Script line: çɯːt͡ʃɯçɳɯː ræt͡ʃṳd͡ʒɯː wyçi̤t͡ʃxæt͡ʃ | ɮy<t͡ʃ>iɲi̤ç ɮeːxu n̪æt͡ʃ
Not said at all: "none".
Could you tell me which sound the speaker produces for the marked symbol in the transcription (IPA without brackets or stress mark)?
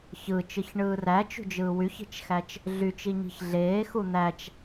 t͡ʃ